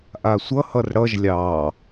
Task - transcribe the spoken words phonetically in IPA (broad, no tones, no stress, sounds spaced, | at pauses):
ʔ a sʷ ʌ h ʌ r ɽ ʌ ʒ lʲ ɑ